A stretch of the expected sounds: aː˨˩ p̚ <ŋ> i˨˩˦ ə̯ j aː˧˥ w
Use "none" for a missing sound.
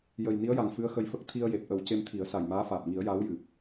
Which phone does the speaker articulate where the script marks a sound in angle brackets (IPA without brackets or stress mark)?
ŋ